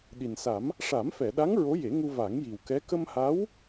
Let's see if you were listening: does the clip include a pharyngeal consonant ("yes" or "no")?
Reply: no